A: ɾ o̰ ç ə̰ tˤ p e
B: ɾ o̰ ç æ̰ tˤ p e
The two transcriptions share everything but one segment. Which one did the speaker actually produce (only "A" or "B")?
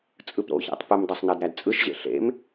B